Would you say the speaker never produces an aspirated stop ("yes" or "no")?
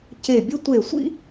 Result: yes